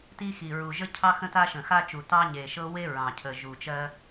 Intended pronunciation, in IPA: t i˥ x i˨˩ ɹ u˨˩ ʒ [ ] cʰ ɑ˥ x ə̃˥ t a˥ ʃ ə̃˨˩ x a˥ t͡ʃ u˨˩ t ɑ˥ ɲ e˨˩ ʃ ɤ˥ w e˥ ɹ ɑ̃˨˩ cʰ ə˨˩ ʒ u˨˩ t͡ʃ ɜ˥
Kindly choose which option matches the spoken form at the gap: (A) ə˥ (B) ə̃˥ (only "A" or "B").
A